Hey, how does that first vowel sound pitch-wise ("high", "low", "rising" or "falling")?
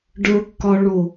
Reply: low